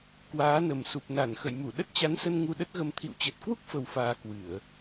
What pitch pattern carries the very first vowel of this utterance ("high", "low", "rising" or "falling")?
rising